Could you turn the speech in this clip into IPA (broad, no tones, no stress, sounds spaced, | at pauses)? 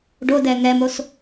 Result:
ɖ o d ɛ ŋ ɛ m o s